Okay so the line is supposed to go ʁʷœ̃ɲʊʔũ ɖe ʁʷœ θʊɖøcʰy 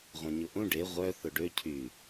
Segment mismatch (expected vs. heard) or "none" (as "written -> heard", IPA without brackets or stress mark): none